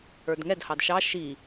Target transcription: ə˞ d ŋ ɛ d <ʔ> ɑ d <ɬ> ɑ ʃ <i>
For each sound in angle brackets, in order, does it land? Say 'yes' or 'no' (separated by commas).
no, no, yes